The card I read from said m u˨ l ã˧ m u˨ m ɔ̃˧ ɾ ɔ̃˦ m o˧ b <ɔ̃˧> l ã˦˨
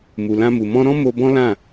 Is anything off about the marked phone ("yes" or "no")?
yes